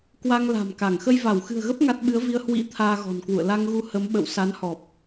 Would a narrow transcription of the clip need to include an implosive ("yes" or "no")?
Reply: yes